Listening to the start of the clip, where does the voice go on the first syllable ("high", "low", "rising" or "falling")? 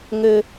high